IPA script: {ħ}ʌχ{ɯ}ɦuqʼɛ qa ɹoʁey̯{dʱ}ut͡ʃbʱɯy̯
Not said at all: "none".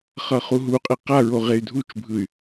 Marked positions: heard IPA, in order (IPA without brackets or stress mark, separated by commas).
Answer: χ, u, dʱ